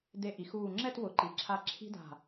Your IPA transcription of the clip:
d e˧˩ ʔ i˩˧ x uː˧˩ ŋ͡ǁ ɛ˥˧ t w ʊ˩˧ ǃ i˩˧ ǁʰ a˧ ǁʰ i̤˥ d a̤˧˩

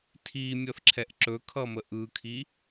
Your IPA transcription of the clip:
tʰ i mʲ ʌ θ ǁʰ ɛ ʔ ǁ ɵ kʰ ʌ m ə ʔ ɯ kʰ i

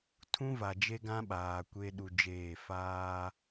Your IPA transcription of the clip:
tʰ ũ˦ v a˨ d͡ʒ e˦ ɡ ã˦ ɓ aː˨ kʷ e˦ ɗ u˨ d͡ʒ eː˦˨ f aː˦

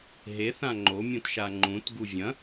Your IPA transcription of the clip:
ɦ e θ ã ŋ͡ǃ o mʲ ũ t ʃ a ŋ͡ǃ ũ t ɡ u vʲ ɐ̃

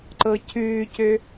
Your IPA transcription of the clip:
ǃ ɤ cʰ ʉː c ø

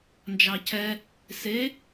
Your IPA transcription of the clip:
n d͡ʒ ɑ cʰ ɛ | s e

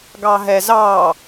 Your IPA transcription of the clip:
ɡ ɑ ɦ ɛ z ɑ

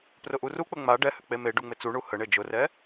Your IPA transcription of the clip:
p r ʊ ʔ u r u k͡p ə ŋ͡m a ɖ ɛ h ʏ k͡p e m e ɖ u ŋ͡m ɪ t͡s u ɳ u h ə ɳ e d͡ʒ ʊ r ɛ

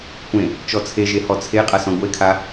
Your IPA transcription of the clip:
kʷ ẽ | t͡ʃ ɔ t͡sʰ e ʒ e h ɔ t͡sʰ e qʼ a s ɔ̃ ɡʷ e kʰ a

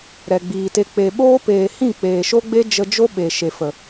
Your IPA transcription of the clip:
ɾ ɛ˨ ɡ͡b iː˨ t e˧ k͡p e˨ ɓ oː˦ p eː˨ h ĩ˦˨ k͡p eː˨ ʃ o˦ ɡ͡b e˦ d͡ʒ ə˧ d͡ʒ o˦ ɓ e˨ ʃ e˨ f ə˨

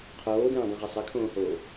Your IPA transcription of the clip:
qʰ oː d ɛ̃ː dˤ õ ʁ ɛ sˤ ɛ kʰ õː h oː

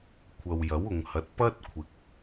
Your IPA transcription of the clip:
kʷʰ ɐ˨ w j ɐ˨˥ w ʊ˨ ŋ h ɐ˨˥ t̚ p ɐ˥ t̚ kʷʰ ɪ˨ k̚

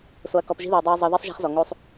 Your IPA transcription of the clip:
s o˧ ɐ̯ k ɔ˧ p ʒ i̤˦ ð i˨ ɐ̯ dˤ ɛ˧ ɐ̯ zˤ ɤ˧ ð i˦ sˤ ʒ a̤˦ χ z ɔ˨ ŋ o˧ sˤ

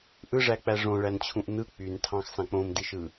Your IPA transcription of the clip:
ʔ ɯ ʐ æ k͡p æ ʐ õ ɭ æ n t͡ɕʰ ũ ʔ n ɯ k͡p y n tʰ ɑ̃ x s ɑ̃ k͡p õ m d i ʃ ɯ

